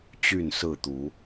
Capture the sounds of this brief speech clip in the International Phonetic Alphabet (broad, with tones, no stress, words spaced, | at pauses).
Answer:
t͡ɕy˥˨nsɹ̩˥˨t̪u˨˦